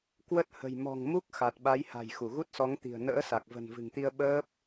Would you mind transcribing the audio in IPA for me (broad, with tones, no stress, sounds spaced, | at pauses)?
k w ə˦˥ t̚ h ə̤˨˩ j m ɔ̤˨˩ ŋ m u˦˥ k̚ x a˨˩ t̚ ɓ a˨˦ j h a̤˨˩ j x u˧˩ ɣ u˦˥ t̚ s ɔ˨˦ ŋ t̪ i̤˨˩ ə̯ n ə̰ː˧˥ s a˨˩ k̚ v ə̤˨˩ n v ɨ̤˨˩ ŋ t̪ i˧ ə̯ ɓ əː˦˥ p̚